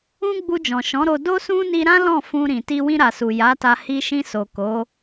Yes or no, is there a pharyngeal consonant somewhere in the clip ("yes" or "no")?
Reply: no